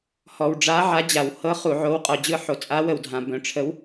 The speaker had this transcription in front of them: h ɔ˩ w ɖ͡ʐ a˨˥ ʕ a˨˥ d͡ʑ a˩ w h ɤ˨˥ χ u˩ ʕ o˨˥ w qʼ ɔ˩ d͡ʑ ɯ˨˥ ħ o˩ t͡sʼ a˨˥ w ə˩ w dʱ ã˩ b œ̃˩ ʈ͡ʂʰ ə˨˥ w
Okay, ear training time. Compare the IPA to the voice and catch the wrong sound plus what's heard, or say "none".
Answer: none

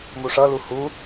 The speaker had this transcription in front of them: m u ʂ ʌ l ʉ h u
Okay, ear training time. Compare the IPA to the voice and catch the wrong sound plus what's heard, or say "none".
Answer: ʉ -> u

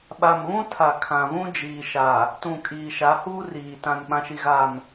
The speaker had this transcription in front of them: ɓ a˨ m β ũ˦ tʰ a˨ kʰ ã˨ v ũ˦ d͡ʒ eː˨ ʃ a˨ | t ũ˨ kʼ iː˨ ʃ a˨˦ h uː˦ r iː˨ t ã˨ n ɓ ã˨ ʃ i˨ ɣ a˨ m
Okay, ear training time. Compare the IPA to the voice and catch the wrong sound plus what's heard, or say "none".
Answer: eː˨ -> iː˨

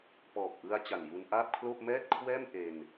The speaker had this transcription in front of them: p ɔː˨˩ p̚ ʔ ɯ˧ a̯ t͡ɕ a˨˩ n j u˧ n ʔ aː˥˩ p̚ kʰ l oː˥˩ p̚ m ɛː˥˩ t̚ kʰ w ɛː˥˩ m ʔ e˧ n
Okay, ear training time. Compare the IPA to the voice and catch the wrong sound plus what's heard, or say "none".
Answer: none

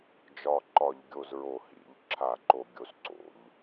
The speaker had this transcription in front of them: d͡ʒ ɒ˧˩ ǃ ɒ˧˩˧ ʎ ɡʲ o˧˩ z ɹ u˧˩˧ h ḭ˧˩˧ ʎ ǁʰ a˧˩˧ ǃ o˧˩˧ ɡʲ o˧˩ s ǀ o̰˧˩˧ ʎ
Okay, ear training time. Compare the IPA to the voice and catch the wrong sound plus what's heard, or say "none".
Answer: u˧˩˧ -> o˧˩˧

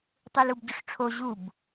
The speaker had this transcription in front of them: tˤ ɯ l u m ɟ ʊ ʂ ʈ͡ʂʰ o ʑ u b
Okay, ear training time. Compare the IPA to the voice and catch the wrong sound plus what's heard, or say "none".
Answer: m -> b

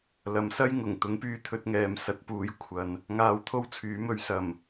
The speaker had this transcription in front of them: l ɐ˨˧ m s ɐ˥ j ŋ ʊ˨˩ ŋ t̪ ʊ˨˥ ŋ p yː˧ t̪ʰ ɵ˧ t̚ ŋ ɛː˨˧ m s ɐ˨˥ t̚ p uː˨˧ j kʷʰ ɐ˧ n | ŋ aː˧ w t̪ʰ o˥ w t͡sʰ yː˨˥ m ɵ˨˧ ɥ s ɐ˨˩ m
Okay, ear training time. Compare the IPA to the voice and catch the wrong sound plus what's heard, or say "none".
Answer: none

